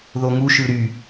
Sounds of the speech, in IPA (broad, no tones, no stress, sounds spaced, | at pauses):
ð o ŋ u ʃ ɯ ɾ y